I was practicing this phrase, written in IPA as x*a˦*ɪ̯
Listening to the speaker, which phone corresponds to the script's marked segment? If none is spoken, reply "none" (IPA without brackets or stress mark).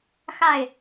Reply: a˥˨